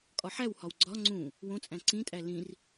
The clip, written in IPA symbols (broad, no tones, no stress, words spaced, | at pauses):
kʼɒħæwhɒw ɡ͡ǀɒ ŋ͡ǀũ | wõt͡sʼæ̃ ǀĩtʼæ lĩr